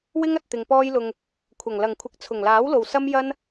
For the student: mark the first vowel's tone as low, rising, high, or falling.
high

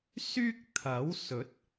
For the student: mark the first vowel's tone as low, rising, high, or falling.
high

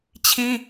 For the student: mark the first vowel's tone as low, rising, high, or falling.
high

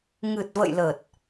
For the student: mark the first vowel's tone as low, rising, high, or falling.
low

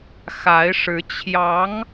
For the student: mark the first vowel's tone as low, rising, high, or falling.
rising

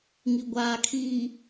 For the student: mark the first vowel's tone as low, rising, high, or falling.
low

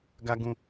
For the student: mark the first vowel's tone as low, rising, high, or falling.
high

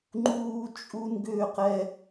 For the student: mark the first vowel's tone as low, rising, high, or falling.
high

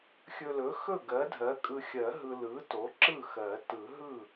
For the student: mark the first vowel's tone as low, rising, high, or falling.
low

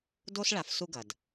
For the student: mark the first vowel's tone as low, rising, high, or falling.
high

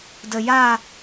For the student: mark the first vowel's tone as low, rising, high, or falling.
low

